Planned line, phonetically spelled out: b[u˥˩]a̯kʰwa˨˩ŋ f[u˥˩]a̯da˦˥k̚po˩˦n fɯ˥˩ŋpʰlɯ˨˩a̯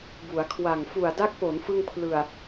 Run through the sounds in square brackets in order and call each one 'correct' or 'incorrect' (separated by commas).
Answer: incorrect, incorrect